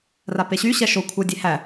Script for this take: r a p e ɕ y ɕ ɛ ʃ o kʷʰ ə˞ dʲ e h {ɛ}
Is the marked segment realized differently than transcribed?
yes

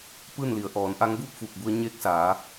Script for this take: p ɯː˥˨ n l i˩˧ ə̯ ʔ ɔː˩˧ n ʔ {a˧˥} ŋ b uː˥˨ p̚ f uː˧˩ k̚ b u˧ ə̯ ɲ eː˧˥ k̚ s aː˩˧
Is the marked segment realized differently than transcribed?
no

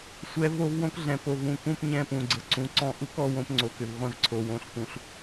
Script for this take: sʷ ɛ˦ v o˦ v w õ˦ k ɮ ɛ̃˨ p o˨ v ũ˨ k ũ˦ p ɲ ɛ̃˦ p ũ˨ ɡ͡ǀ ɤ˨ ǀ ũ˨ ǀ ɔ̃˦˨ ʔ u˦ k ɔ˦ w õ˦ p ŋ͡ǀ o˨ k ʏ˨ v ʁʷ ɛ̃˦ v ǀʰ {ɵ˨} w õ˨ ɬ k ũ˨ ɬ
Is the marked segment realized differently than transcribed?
yes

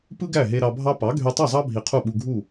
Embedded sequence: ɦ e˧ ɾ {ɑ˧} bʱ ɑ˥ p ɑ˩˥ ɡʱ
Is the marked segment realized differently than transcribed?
no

